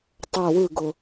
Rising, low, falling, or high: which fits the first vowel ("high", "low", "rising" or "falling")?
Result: falling